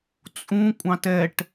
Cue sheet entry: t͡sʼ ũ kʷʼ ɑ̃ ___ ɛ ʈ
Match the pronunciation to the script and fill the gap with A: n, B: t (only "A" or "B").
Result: B